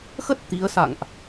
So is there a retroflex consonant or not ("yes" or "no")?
no